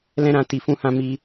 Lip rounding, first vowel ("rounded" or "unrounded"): unrounded